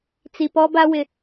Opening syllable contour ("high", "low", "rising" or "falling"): low